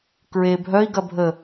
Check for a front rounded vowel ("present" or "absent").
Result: present